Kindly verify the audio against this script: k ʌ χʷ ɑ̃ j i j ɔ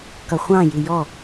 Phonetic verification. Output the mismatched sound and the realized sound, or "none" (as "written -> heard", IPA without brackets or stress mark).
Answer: none